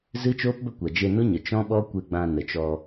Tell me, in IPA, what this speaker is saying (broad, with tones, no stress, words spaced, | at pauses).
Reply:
zɨ˦t͡ʃoː˦pbə˦ kʷa˨d͡ʒe˧no˦ ɲə˨ t͡ʃɔ̃˦ɓɔ˦kʷe˧ɡ͡bã˧ nə˨t͡ʃɔ˧